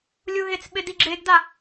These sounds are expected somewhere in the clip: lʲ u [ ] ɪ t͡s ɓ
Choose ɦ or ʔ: ɦ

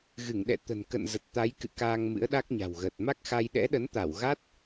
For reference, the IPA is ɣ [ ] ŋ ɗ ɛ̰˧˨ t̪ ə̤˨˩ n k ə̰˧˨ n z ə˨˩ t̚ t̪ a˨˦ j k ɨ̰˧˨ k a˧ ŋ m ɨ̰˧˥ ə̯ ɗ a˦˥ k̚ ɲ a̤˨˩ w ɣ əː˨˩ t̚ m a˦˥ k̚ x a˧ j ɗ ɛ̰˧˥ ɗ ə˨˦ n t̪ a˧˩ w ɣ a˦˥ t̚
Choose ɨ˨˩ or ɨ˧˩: ɨ˧˩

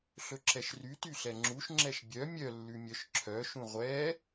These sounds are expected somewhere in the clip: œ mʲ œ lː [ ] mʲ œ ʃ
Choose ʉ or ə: ʉ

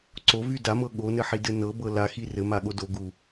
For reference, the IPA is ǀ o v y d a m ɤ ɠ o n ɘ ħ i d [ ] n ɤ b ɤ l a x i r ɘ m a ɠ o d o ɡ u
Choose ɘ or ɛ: ɘ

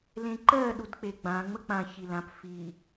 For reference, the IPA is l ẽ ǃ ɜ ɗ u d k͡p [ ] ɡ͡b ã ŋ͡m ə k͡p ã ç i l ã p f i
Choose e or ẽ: e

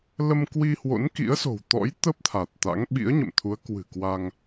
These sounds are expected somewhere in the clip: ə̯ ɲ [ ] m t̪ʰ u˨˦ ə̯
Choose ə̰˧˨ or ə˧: ə̰˧˨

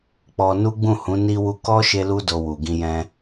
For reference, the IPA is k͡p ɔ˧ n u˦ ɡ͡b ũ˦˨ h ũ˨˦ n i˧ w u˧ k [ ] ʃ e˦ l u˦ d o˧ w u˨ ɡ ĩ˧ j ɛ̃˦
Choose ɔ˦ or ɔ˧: ɔ˦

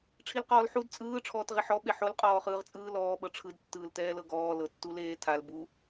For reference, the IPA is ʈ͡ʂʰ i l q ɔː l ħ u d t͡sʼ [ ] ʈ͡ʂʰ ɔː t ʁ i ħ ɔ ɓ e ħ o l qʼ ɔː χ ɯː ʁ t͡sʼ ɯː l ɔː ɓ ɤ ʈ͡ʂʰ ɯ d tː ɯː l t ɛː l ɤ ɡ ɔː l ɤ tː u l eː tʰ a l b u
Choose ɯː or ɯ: ɯː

